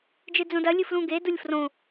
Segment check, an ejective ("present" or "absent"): absent